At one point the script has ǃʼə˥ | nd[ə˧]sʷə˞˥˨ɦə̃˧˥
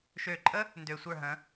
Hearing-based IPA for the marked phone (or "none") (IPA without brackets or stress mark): ø˧